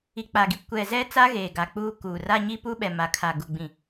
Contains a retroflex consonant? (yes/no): no